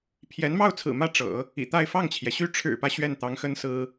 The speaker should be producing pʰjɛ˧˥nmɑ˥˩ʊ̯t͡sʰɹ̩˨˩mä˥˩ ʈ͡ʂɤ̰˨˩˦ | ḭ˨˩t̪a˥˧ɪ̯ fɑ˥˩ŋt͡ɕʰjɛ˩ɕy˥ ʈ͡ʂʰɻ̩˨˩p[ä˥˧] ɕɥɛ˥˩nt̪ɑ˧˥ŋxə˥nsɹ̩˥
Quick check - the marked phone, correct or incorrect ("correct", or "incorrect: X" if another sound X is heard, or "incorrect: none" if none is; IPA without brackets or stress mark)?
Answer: incorrect: ä˦